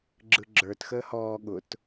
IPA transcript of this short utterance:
ɡ͡ǁɯɡ͡ǁə˞t xəːhɔː ɠʊt

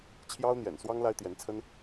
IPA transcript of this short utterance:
t͡ɕʰjɑ˥ʊ̯n̪jɛ̰˨˩nswɑ˥ŋ la˥ɪ̯t̪jɛ˧˥nt͡sʰə˥n

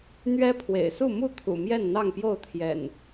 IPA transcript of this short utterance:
n̪ɥɛ˦pʰwḛ˨˩ɪ̯su˥˨ mu˥˨t̪ʰṵ˨˩ mjɛ˥˨nn̪ɑ˥˨ŋpjo˥˨ʊ̯t̪ʰjɛ̰˨˩n

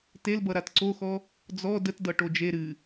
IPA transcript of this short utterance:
telbʌ ɾatǀoxɔ | d͡zɔ dətdʌ ʈod͡ʒe ɾɨ

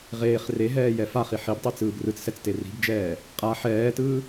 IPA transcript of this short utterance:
ʁeːχ reɦɛːjɛ faχi ħibtˤit͡sɯːb rɯt͡ssɛt͡ste ri̤bd͡ʒɛː | qʼa ħɛːtɯː

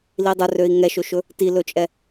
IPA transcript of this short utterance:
lidˤɵrøi̯ ŋɛʃɵʃɵ | tilɵt͡ʃʼɛ

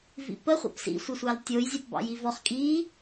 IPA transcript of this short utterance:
vḭpə χʷɑ̰psḭ sʷɘsʷɑltʲoj zʲɑpbɑ̰jivɔχ kʼi

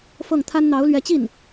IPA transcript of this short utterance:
fɤ˥˩ŋt̪ʰa˥n n̪ɑ˧˥ʊ̯lɥɛ˧˥t͡ɕi˥˩n

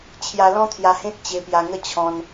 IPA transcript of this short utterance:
t͡ɕʰja˧lɔ̃˦t̪ʰja˧hẽ˦t̚ t͡ɕe˧pja˧ŋə˥˧ t͡ɕʰɔ̃˧n

